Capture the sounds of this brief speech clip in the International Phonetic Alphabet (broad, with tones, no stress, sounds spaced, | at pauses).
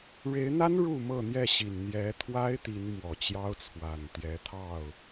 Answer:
ɻ e˨˦ ɪ̯ n̪ a˦ n ɻ u˥˨ m ɤ˥˨ n̪ j ɛ˥˨ ɕ i˨˩ n n̪ j ɛ˨˦ t̪ʰ w a˦ ɪ̯ t̪ i˨˦ n m w ɔ˨˩ t͡ɕ j ɑ˦ ʊ̯ t͡sʰ w a˨˩ n t̪ j ɛ˨˦ t̪ʰ ɑ˥˨ ʊ̯